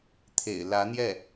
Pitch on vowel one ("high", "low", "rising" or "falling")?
low